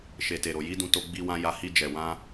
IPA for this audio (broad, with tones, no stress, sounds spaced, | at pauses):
ʃ e˨ t e˨ ɾ o˨ j i˨˦ d ũ˧ t o˧ ɡ͡b i˧ w ã˧ j a˧ h i˧ d͡ʒ ɛ˨ w ã˧